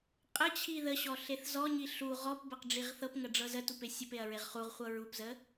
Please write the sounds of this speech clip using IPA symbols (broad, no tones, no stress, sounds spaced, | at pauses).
qʼ ə t͡ɕʰ i ð ə ɕ ɔ ɬ e θ z ɔ ɲ i ɬ u ʁ ɔ p b ə q ɖ͡ʐ i ʁ θ ɤ p ŋ ə ɖ͡ʐ ɤ z ə t u p e sʲ ə p e ɐ̯ ɹ e ʁ χ u ʁ χʷ ɤ ɹ u p z ə